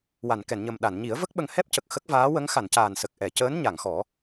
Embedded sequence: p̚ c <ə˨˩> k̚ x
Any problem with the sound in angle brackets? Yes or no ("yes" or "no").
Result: no